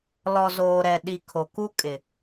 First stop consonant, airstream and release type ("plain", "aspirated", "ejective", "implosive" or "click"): implosive